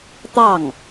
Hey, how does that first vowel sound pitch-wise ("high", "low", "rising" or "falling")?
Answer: falling